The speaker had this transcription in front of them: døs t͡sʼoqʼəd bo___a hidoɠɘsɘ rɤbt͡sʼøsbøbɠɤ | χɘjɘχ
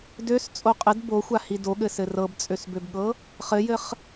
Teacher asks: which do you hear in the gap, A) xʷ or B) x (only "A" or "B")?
A